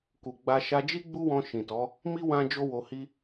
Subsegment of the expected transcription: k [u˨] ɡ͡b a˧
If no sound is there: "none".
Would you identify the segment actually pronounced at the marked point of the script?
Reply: u˨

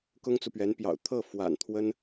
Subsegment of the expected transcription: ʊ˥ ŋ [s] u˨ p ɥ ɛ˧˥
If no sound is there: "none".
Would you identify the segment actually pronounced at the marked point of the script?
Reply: t͡s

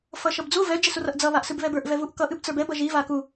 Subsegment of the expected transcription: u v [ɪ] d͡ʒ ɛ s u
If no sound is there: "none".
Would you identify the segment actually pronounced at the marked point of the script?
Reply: ɛ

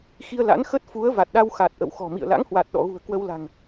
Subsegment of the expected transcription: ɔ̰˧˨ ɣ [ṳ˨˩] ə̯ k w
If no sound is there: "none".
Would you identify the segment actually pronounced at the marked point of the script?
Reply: ṳ˨˩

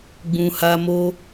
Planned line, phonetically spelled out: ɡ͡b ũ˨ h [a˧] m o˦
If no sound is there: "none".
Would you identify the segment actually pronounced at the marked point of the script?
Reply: a˧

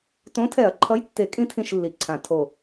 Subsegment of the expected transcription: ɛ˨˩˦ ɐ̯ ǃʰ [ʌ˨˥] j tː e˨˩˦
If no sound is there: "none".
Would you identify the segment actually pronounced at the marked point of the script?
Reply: ʌ˨˥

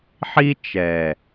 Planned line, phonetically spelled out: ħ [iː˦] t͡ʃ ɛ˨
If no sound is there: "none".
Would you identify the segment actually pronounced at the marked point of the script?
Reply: i˦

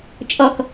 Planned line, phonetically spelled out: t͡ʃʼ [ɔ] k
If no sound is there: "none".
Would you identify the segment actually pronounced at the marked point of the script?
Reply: ɔ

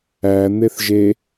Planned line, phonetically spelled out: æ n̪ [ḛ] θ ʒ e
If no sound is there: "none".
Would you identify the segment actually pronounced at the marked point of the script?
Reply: e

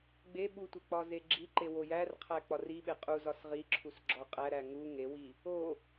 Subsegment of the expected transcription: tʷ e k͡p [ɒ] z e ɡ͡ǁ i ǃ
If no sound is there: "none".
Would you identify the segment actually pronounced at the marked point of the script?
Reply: ɒ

